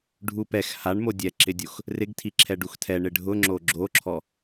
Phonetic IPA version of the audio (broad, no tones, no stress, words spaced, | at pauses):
ɖʱupɛx haɳmo dʲɛǁɪdʲox | rɪɡtʰi ǁʰɛɖuxtʰɛ ɳɪɖʱʊ ŋ͡ǁoɡ͡ǁoǁʰɔ